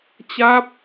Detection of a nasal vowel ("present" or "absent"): absent